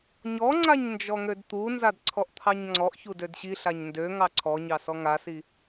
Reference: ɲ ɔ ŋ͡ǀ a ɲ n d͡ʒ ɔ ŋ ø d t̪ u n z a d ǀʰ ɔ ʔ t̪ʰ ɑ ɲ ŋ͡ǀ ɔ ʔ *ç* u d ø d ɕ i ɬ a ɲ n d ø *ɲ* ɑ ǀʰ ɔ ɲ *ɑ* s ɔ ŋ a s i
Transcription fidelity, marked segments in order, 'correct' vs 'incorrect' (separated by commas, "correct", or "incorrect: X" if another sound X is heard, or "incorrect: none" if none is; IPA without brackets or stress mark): correct, incorrect: ŋ, correct